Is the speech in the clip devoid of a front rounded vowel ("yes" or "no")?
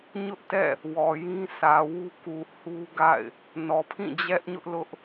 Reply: yes